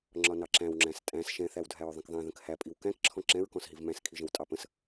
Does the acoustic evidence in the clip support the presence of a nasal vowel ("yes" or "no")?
yes